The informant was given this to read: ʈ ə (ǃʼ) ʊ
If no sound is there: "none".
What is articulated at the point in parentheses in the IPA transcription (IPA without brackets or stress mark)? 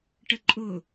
ǃʼ